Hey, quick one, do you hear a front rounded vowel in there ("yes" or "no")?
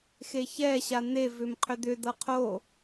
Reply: yes